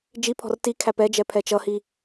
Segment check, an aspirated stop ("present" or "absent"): present